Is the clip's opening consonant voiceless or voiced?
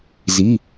voiced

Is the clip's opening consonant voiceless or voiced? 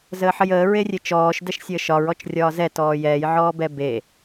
voiced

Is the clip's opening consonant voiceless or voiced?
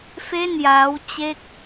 voiceless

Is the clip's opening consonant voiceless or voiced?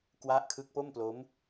voiceless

